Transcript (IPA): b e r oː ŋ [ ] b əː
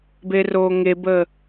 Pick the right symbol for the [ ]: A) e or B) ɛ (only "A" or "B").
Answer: A